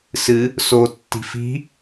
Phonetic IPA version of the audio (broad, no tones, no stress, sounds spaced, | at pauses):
s ɨ | s o tː i̤ f i̤